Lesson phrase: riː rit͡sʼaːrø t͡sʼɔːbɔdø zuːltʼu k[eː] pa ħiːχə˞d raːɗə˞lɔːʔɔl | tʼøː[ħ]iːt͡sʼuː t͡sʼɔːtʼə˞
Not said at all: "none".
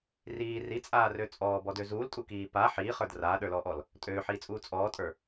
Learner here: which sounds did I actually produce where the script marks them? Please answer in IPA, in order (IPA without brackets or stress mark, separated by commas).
iː, ħ